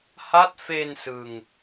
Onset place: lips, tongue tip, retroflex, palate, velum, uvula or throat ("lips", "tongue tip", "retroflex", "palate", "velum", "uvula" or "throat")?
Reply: throat